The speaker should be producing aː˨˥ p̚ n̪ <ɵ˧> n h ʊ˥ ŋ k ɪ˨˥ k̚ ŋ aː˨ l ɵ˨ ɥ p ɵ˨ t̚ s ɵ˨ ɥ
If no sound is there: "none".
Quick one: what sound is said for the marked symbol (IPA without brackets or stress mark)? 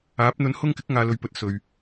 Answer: ɵ˧